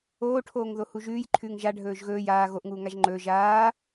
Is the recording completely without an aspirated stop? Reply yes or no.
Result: no